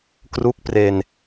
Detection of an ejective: absent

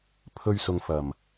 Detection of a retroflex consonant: absent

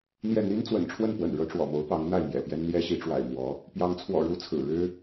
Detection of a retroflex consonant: present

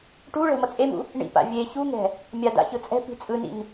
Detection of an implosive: absent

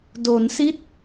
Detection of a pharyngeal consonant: absent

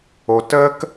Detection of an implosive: absent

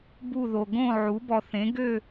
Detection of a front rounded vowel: present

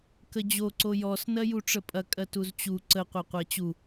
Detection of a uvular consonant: present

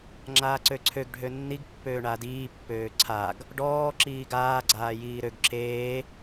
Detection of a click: present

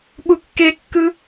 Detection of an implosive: present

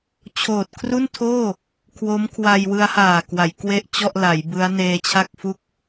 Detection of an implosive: absent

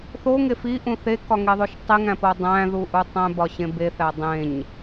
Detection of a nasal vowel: present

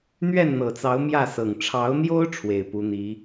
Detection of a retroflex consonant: present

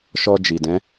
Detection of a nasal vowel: present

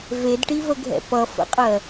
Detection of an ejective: present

